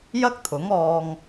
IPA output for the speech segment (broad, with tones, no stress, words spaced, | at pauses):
jɐ˥k̚t̪ʰʊ˨˥ŋɔː˧ŋ